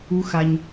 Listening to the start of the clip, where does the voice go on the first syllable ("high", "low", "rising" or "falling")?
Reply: high